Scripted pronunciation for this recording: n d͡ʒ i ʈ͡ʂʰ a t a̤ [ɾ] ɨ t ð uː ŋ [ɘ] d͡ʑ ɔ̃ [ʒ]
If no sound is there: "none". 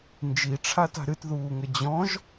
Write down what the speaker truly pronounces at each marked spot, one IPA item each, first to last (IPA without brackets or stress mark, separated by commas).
ɾ, ɘ, ʒ